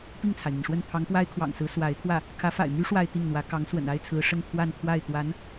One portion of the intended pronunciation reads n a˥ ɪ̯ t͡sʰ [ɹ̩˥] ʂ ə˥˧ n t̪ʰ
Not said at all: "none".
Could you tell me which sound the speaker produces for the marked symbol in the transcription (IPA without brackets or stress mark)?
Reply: ɹ̩˧˥